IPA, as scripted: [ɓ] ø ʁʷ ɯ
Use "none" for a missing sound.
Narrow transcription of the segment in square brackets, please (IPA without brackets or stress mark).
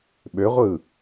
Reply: ɓ